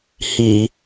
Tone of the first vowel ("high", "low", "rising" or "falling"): low